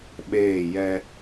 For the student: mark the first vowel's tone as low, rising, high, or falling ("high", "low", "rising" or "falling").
falling